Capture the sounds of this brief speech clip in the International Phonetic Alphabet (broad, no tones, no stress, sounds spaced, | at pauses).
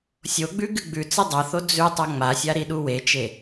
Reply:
sʲ o ɡ͡b ʉ ɡ ɨ ɡ͡b ʉ t͡s ɨ dˤ ɐ θ o d͡z ʉ tˤ ɐ ŋ͡m a sʲ a ɾ i ɗ u w e t͡ʃ e